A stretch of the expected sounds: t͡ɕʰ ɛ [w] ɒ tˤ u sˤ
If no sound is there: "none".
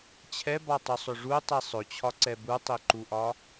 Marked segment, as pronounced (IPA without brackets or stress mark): b